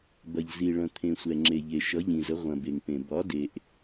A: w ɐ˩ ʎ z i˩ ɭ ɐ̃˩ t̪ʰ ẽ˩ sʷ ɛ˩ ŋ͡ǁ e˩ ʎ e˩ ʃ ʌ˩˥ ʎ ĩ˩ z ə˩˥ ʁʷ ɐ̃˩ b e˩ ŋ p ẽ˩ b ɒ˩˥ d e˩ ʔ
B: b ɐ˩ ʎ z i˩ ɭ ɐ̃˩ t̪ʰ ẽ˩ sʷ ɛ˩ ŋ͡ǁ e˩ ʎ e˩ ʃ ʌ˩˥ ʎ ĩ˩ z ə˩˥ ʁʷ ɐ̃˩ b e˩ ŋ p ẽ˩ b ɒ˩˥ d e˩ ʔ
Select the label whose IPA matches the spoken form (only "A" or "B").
B